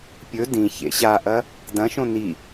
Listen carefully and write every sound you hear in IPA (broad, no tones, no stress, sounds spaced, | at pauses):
pʲ ɵ d ĩ ç ḛ ɕ a ʔ ɐ | d ɐ̃ ʃ õ n i